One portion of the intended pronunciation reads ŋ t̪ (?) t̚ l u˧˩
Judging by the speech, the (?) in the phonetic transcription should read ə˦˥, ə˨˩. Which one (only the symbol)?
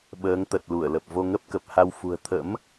ə˨˩